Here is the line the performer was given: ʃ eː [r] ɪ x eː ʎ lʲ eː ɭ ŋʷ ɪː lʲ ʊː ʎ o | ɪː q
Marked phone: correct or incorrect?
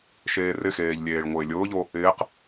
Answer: correct